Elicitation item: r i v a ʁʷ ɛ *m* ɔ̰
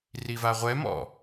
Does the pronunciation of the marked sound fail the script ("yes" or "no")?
no